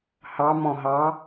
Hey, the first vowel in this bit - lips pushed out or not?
no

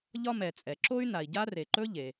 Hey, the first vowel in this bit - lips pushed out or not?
yes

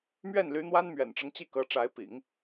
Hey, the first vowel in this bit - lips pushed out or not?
no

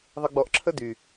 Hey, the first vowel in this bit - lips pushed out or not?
no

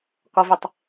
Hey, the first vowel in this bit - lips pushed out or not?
yes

